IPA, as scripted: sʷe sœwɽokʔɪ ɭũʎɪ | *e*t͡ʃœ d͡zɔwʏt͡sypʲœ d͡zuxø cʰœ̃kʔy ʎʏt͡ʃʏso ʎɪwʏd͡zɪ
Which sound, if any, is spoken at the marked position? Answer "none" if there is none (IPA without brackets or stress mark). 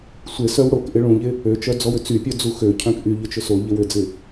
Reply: ø